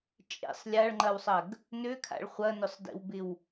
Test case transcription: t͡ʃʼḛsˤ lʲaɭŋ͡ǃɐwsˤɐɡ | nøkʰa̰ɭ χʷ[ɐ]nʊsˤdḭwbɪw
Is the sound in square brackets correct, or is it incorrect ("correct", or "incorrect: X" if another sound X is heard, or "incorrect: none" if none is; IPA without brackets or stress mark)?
correct